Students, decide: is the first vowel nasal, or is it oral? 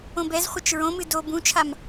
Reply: nasal